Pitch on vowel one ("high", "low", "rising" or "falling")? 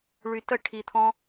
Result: low